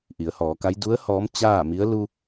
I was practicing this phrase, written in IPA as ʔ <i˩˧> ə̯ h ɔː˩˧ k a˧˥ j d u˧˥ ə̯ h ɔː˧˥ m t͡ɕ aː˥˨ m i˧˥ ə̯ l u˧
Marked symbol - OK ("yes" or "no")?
yes